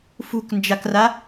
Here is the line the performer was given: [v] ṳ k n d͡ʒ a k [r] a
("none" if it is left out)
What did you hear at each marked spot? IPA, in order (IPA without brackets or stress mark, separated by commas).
f, r